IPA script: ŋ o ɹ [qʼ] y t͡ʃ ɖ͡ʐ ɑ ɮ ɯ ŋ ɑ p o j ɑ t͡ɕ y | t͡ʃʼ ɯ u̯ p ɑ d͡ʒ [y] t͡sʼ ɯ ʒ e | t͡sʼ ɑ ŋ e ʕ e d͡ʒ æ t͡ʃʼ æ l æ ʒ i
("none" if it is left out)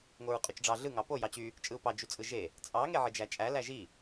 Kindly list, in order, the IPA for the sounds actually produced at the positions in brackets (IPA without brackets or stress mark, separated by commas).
qʼ, y